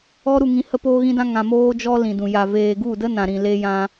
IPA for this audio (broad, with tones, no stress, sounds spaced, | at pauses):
ɔ˦ ɾ u˧ ŋ ĩ˧ h ə˦ p oː˧ ɣ ĩ˧ d ã˧ ŋ ã˨ m oː˦ d͡ʒ ɔ˦ l ĩ˨ d ũ˨ j a˨ v eː˨ ɡ u˦˨ d ə˦ n ã˨ ɾ ĩ˨ l e˧ j ã˧